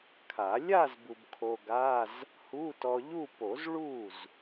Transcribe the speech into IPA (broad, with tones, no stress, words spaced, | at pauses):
kʰa˨˩˦ lʲa˥˧z bu˧bkʰo˧ɡa˧˥˧z | hu˧˥˧tɔ˧ʎu˥˧po˨˩˦z ɭu˥˩z